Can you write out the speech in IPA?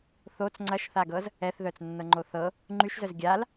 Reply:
θ o t͡s ŋ͡ǀ ɐ ʃ θ a ɡ ɤ z | ɛ θ ð œ t͡s nː ɤ ŋ͡ǃ o θ ɤ | ŋ͡ǃ y ʃ z œ z ɡʲ a l

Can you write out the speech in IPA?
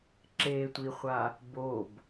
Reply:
ǁ e tʷ i χʷ a | b o b

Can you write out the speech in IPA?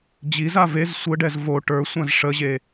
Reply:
d͡ʑ i z a v e z sʷ ə ɖ ɛ z v o ʈ ə˞ sʷ ã z ʂ ə ʑ e

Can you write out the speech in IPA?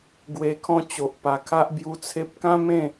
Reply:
ɡ w e˨˩ kʰ ɔ̃˧ t͡ɕ o˨ ʔ p a˧ kʰ a˦ ʔ b j u˧ t͡sʰ e˦ p̚ k ã˦ m ẽ˥˧

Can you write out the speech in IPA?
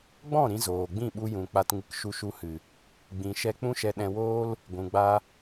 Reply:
ɡ͡b ɔ̃˦˨ ɾ ĩ˧ z oː˨ ɡ͡b ĩ˦˨ ɓ u˧ j ũ˨ k͡p a˨ t ŋ ɨ˨ k ʃ u˧ ʃ u˧ h ɨ˨ | ɡ͡b ĩ˨ ʃ ɛ˧ k͡p ũ˦ ʃ ɛ˧ ɗ ɛ̃˧ w oː˦ l | ɡʷ ũ˨ ɡ͡b a˧

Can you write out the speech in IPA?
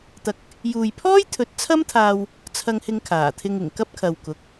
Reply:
t̪ ɐ˨ k̚ | j uː˨ j pʰ ɔː˥ j t̪ʰ ɵ˨˥ t̚ t͡sʰ ɐ˥ m t̪ʰ aː˧ w | t͡sʰ ɐ˧ ŋ h ɪ˧ ŋ kʰ aː˨˩ t̪ʰ ɪ˧ ŋ ɪ˨˩ ŋ k ɐ˥ p̚ kʰ ɐ˨ w k ʊ˨˥ k̚

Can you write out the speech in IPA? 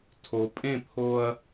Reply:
tʰ o˨ pʼ ẽ˦˨ pʰ o˦ ɐ̯

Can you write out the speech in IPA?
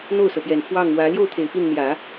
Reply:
n̪ o˥˩ ʊ̯ s ɤ˩ p j ɛ˨˩ n f w ɑ˥˩ ŋ w ä˧˥ l j o˥˩ ʊ̯ t̪ʰ e˨˩ ɪ̯ p i˥˩ n n̪ j ä˨˩˦

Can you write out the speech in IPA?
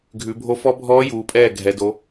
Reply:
ɡʱ ʉ˩˧ bʱ o˧˥ f ɔ˧˥ bʱ ɔː˧˥ j uː˩˧ pʼ ɛː˥˩ ɡʱ ɛ˩˧ d o˩˧

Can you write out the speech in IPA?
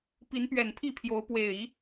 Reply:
p i˨˦ n p ɥ ɛ˨˩ n pʰ i˥˨ pʰ j o˨˦ ʊ̯ p w e˨˩ ɪ̯ i˨˦

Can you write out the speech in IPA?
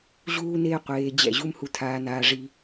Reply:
ʑ uː˦ n eː˦ qʷ eː˧ d͡ʑ ɛ̰˦˨ ʑ u˦ m h u˧ tʰ aː˧ n aː˦ ʐ i˦

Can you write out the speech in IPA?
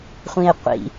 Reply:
χʷ ĩ e̯ qʷ ḭ

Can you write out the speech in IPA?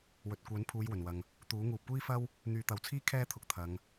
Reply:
w ɵ˨ t̚ kʷ œː˨˥ n pʰ uː˨˧ j w ɵ˨˩ n w ɐ˨ ŋ | t̪ uː˨˥ ŋ uː˨ p̚ kʷ iː˥ f ɐ˥ w | n̪ yː˧ t̪ ɐ˨ w t͡sʰ iː˥ kʰ ɛː˥ t̪ʰ ʊ˨ k̚ t̪ʰ ɐ˨˧ ŋ

